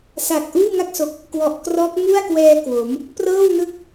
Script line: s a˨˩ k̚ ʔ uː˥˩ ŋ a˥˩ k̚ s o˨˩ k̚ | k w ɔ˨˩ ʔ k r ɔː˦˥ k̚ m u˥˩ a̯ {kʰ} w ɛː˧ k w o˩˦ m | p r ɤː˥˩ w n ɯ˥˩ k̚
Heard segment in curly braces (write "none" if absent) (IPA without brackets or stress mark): k